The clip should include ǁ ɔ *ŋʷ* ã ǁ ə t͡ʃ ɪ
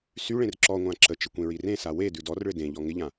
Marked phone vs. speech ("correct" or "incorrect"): correct